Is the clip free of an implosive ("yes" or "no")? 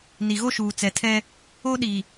no